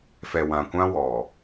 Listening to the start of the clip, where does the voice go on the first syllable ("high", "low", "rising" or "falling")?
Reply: low